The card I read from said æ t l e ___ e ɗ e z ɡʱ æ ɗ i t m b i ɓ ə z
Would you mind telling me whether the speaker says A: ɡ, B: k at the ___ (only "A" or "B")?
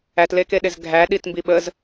B